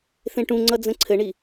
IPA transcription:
θ ẽ ʈ ũ ŋ͡ǀ ʌ d͡z ə̃ ǀʰ ɘ ɳ i

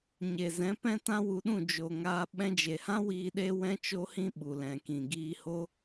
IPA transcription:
ɲ e˨ z ɛ̃˨˦ p ɛ̃˦ t ã˦ w u˧ ɗ ũ˦˨ d͡ʒ o˨ ŋ aː˧ ɓ ɛ̃˧ d͡ʒ e˨ h ã˦ w iː˧ ɗ e˦ w ɛ̃˦ t͡ʃ o˦ h ĩ˦ ɓ u˨ l ɛ̃˨ k ĩ˨ ɡ iː˧ h o˦

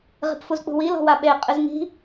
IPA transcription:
ʁ i̤ p f u z k͡p ṳ w i l ɔ̤ w a ɓ e qʼ ɨ z ŋ i̤

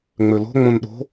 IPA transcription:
ŋ͡m ø l o̤ ŋ͡m õ n ɗ o̤

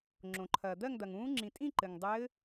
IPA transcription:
ŋ͡ǁ õ˩ ǃʰ ɐː˩ d̪ ɜ˥˨ ŋ d̪ ɐ˩ ŋ ũː˧˥ ŋ͡ǁ ĩ˩ tʼ ĩ˥˨ ǃ ɘ˩ ŋ dˤ ɘː˧˥

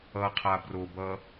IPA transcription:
ʌ qʰ a b r o b ʌ

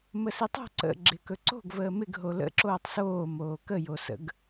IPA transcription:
m ə s i tˤ o̤ ǀ ə̰ ɡ͡ǁ ɪ k ɵ ǀ o̤ ɡ v əː m ɪ ɡ ɦ o l ə̰ ǁ oː tˤ s oː m oː k ə j o s ə̰ ɡ

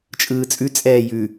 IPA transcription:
t͡ʃʼ ɯː t͡sʼ ʉ t͡sʼ ɛː j ʉ

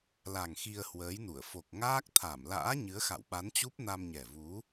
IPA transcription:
l a˨˩ ŋ x i˧ ə̯ h w əː˨˦ j n u˧˩ ə̯ f o˨˩ k̚ ŋ aː˦˥ k̚ t̪ʰ a˧˩ m l a̰ː˧˥ ɲ ɨ˨˦ ə̯ x a̰˧˨ w ɓ a˨˦ n t͡ɕ u˦˥ p̚ n a˧ m ɲ ɛ˨˩ v u˨˦

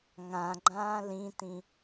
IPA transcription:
ŋ ã ɡ͡ǃ ãː l ĩ t ĩ

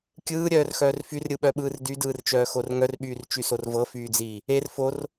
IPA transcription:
kʲ ɯː ɾʲ œː r x œː r f y r ɾʲ ɯ ɓ œ ɓ ɯː r d y d ɯː r t͡ʃ œː x o r ŋ œ r ɓ yː r t͡ʃ y s o r v ɤ f yː d͡z iː | e r f o r

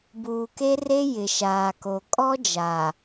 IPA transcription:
b uː˨ k e˦ r e˦ j ɪ˨ ʃ aː˨ k o˨ kʼ ɔ˦ d͡ʒ aː˨

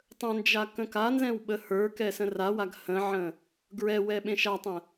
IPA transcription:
tˤ ə̃ n d͡ʒ a k ə̃ k a n z ɛ̃ w ɓ ə h ə˞ k ɛ s ə̃ r a w a ɡ h ə̃ ʕ ə̃ | ɡ ɹ ɛ w ɛ ɓ ẽ ʃ a tˤ ə̃

